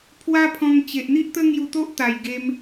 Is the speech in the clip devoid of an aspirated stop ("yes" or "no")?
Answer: no